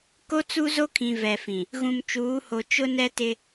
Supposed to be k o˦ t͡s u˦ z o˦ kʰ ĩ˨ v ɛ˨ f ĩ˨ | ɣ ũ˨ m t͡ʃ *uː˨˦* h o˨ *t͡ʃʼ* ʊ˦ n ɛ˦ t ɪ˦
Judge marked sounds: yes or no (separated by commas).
yes, no